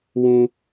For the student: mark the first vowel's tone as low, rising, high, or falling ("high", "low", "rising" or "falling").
high